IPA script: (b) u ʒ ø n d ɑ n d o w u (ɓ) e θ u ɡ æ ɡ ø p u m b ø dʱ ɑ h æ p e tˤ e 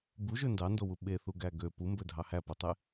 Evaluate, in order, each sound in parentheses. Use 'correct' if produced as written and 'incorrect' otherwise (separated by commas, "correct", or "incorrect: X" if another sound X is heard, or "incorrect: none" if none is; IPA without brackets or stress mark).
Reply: correct, correct